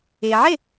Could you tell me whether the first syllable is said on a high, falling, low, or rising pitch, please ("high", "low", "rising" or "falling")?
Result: low